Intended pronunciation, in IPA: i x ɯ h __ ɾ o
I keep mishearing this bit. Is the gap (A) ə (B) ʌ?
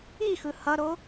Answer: B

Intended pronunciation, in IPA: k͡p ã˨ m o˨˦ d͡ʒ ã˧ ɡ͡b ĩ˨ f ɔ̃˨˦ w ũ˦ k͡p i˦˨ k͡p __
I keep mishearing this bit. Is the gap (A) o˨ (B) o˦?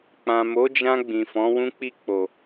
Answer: A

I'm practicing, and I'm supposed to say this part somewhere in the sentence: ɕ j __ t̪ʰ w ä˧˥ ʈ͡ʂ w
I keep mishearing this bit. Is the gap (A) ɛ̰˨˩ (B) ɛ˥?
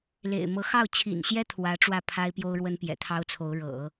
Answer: B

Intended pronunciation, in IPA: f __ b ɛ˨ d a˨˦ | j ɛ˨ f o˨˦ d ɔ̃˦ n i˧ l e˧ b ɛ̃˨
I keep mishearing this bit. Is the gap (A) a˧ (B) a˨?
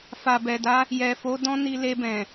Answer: B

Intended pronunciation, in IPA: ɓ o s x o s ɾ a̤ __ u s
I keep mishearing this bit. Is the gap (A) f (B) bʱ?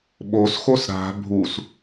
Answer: B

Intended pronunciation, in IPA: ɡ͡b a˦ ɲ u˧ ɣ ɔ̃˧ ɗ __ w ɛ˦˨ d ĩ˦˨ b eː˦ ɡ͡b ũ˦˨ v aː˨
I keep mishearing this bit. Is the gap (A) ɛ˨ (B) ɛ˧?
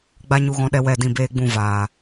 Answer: B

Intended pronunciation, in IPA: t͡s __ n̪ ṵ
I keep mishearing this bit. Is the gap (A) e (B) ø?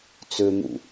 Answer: B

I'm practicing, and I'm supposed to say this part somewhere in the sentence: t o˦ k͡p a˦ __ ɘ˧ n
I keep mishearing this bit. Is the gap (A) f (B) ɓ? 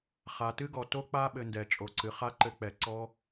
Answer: B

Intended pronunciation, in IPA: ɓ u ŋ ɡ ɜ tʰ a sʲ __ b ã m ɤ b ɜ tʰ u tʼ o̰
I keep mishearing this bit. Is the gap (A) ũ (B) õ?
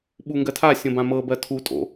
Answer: B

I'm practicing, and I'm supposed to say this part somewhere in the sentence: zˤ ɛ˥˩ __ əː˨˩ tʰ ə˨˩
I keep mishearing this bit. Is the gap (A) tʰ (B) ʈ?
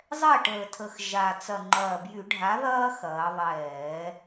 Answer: B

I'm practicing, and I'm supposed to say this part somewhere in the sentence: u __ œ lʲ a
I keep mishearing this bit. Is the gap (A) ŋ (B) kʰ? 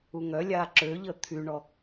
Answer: A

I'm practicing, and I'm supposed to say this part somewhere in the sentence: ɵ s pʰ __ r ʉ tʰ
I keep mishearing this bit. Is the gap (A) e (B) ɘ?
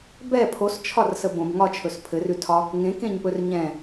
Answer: B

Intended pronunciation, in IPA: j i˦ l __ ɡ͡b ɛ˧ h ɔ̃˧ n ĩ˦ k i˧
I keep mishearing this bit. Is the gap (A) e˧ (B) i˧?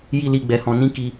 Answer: B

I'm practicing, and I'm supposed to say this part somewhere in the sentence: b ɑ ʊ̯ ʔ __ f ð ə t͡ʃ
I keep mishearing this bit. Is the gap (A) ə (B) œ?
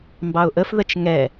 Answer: A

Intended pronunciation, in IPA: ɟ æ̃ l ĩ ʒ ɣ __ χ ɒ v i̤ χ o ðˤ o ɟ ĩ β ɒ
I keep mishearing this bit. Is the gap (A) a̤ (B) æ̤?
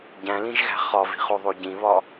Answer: B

